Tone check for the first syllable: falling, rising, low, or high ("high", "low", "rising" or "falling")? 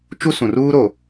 high